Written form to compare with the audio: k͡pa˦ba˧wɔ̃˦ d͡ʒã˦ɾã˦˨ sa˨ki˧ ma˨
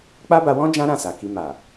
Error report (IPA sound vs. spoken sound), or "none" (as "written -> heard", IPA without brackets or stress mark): none